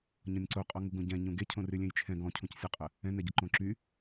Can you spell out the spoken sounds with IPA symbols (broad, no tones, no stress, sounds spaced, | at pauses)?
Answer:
ɲ ɔ̃ nʲ ǀ o qʼ ɔ ŋ u ɡ ũ ɟ ɛ̃ ɲ ũ ɡ e cʰ õ r y lʲ ẽ j t͡ʃʰ ɛ̃ ɡ ɔ̃ cʰ ũ c sʲ ɔ qʼ ə | ɛ̃ n ɛ ɟ ə ǃ õ ǁ y